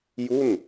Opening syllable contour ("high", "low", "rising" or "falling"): falling